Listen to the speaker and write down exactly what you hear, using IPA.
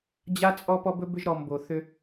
d͡ʑa˦t͡sʼɔ˦ pɔ˦bɵ˦bʏ˦ʒ ɾɔ˨mbo˨θʏ˦

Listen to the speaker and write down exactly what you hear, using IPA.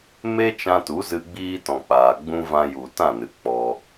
me˦ t͡ʃã˧tu˨˦zɨ˧ ɡ͡biː˦tɔ̃˨k͡paː˨ɡ͡bũ˦ vã˧ju˨tã˦˨ nɨ˨k͡pɔ˧

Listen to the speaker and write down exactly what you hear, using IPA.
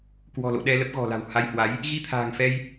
kwɔ̤˨˩lo̰˧˨ ɗɛ˧lə˦˥p̚ɣɔ̤˨˩la̤˨˩w ha˧jhwa˨˦j | ɣi˧t̪ʰa̤ː˨˩ŋfɛ˧j

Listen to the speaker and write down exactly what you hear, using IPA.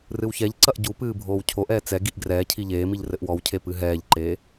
rɨwçɛʎǀɐʔ ɟupɨː bʱoːwcʰoʔɛː t͡sɛɡiʔ ɡrɛːcʰi ʎeːmiʎ rɘʔwɔwcʰe pɨɦɛːʎǃeː

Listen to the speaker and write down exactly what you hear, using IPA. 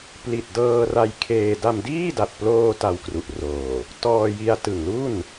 pli˨˩t̚dɤː˧ra˧jkʰeː˧ da˧mdiː˥˩da˨˩t̚ploː˧ ta˧wkru˨˩ʔroː˨˩ | tɔː˧ji˧a̯ tɯ˨˩ŋlu˥˩n

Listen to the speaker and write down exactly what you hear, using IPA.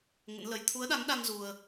ŋə̰˧˥nlə˨˦j t̪ʰu˨˦ə̯ɗa˨˦ŋɗa˧ŋ zu˧ə̯

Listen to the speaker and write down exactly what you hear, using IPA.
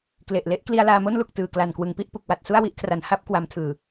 kle˨˩ʔle˦˥ʔ kli˧a̯laː˧mo˥˩nlu˨˩k̚ tɯː˨˩kla˨˩nkwɯ˩˦ŋpi˥˩ʔ pu˨˩k̚wa˨˩t̚ su˥˩a̯wi˥˩ʔkʰra˨˩n ha˥˩p̚ kwa˧mtʰɯː˨˩

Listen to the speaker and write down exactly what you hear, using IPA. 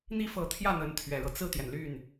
n̪i˥˩fɤ˧˥t̪ʰjä˥˩ n̪ə˧˥nt̪ʰɥɛ˨˩ɻɤ˦ t͡sɹ̩˥˩t̪jɛ˩nly˥˩n

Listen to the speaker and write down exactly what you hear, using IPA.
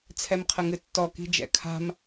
t͡sʰɛmqʰəŋɨtːɔ ki̤d͡ʒɛ̰kʰa̤m

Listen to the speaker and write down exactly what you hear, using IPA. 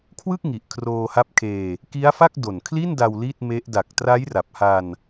kʰwɯ˥˩k̚ŋi˨˩ʔ kʰroː˧ha˦˥p̚kʰeː˧ | ki˦˥a̯fa˥˩k̚ do˨˩nkʰli˥˩nda˧w li˥˩t̚me˦˥ʔ da˨˩k̚tra˦˥jra˨˩p̚ha˧n

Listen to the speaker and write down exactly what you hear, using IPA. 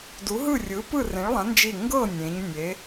du˨˥ɦɯ˥˨rʲɯ˨˥ pɯ˥˨rẽ˨˥ɭlˠã˨˥ nd͡ʒi˥˨ ŋɡɤ˥˨ nʲẽ˨˥ɲnʲe˨˥

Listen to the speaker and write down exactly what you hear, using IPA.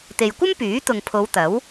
t̪e˨jkʷɐ˥mpyː˨˥t̪ʊ˨ŋ pʰo˨˧wt̪ɐ˨˥w

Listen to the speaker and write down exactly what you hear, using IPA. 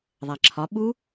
ðˤæǁʰɒ ɓu

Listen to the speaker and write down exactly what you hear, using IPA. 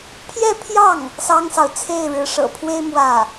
pʰjɛ˥˧pʰjɑ˥˩ŋ | sɑ˥ŋsɑ˨ʊ̯ t͡sʰe˥˩ɪ̯ɻɻ̩˧˥ʂɤ̰˨˩pʰwe˥ɪ̯ mwä˥˩

